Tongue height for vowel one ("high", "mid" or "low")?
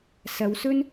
low